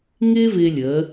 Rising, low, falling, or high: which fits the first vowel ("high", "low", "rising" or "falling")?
high